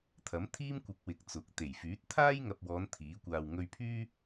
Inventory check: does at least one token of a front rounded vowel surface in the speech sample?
yes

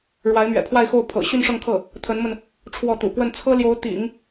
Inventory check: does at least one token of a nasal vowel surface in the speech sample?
no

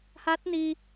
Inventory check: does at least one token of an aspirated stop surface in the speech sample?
no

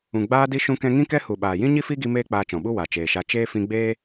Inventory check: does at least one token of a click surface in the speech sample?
no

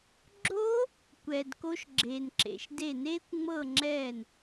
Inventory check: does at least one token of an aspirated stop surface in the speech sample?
no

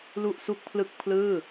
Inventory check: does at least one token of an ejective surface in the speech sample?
no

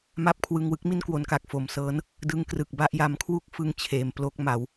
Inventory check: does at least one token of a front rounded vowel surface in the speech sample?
no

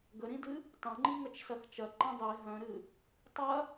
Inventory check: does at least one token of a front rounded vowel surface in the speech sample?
yes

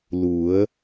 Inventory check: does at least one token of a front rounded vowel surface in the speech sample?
no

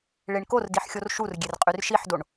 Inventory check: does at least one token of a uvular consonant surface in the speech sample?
yes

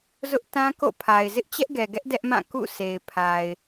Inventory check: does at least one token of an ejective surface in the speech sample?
no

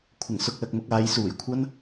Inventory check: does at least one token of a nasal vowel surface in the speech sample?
no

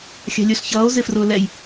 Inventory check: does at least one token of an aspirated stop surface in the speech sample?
no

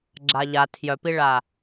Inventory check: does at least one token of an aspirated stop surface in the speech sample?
yes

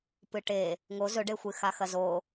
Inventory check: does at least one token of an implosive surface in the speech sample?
no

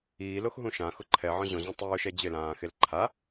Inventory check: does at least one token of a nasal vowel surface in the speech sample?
yes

